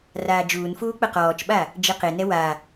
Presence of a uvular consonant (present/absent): present